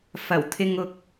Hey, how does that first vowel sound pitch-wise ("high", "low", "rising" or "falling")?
low